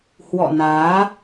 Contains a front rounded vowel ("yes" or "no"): no